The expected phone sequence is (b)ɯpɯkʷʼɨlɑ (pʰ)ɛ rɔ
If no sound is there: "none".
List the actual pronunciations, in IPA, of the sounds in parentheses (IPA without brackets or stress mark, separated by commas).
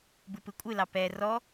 b, p